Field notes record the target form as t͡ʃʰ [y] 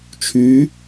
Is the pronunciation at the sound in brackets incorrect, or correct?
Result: correct